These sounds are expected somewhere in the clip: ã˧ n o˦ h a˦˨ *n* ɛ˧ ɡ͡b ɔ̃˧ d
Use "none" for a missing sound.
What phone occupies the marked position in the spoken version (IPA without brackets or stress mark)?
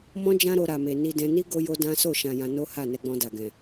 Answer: n